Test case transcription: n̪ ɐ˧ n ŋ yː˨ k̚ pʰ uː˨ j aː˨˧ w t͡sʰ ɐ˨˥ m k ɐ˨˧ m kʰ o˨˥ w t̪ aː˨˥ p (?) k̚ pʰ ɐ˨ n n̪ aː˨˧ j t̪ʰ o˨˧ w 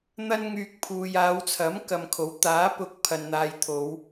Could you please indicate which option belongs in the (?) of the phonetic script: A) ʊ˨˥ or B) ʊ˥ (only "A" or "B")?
A